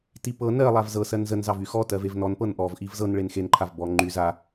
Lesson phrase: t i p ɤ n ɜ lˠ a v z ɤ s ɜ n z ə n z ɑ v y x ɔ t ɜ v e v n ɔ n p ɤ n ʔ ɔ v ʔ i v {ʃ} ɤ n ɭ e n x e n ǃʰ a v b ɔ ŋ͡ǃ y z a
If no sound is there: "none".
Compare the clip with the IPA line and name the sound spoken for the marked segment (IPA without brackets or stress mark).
z